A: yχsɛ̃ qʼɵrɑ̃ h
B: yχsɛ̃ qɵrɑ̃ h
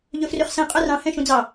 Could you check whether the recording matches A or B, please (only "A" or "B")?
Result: A